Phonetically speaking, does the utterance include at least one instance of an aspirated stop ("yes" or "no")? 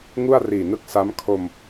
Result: yes